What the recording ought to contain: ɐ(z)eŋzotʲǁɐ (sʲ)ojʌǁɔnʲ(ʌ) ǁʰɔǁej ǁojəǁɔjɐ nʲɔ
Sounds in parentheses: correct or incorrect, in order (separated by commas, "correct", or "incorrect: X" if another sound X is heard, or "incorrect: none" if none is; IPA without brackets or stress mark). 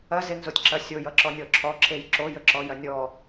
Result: correct, correct, incorrect: ɔ